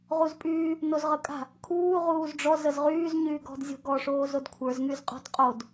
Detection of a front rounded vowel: present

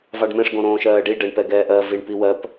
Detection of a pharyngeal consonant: absent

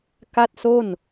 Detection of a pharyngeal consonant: absent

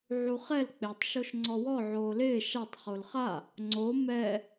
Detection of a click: present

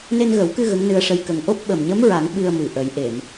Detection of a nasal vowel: absent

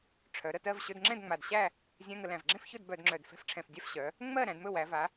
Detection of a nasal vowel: present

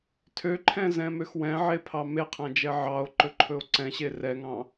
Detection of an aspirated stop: present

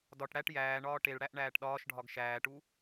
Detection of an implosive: present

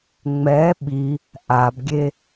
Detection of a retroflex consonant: absent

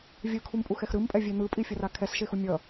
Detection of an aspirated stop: present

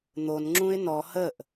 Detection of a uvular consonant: absent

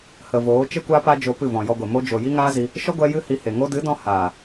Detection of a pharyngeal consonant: absent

